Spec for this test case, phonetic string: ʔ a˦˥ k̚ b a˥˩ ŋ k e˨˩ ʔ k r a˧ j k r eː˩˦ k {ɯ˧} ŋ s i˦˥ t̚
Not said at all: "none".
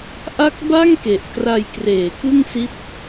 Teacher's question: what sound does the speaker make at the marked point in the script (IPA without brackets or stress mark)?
ɯ˥˩